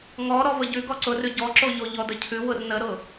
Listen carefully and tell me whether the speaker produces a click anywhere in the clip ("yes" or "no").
yes